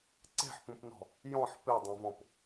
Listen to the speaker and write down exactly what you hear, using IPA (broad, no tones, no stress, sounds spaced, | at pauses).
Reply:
ǀ e̤ ħ p ũ p n ɔ̤ | j ɔ̃ ħ p e dˤ ẽ v ɔ̃ p